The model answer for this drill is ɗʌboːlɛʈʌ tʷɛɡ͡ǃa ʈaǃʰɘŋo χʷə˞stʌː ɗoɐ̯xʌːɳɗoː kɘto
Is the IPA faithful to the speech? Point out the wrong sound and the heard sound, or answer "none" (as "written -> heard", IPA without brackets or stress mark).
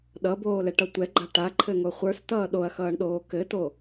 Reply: none